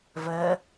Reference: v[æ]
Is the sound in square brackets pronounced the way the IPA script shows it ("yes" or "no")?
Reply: no